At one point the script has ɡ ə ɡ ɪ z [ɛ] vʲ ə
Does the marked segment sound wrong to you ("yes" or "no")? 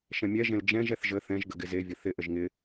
yes